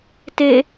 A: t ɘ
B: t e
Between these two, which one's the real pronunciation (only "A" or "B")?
B